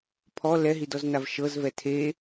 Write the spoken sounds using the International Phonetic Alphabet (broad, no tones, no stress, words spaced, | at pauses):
pʰɔ lɛɦidɔznav ʃɤzvɛ tʰe